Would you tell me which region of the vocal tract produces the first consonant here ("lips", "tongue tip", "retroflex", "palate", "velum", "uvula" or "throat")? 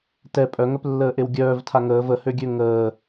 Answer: tongue tip